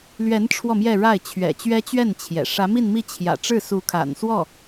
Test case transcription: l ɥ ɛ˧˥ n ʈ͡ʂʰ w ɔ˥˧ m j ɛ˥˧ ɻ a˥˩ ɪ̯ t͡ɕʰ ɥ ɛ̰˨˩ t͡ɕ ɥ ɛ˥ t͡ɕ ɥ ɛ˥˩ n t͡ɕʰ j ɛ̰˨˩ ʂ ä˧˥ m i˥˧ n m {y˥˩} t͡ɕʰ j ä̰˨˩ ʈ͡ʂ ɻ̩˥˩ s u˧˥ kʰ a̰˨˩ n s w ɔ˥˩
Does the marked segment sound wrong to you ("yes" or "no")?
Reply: yes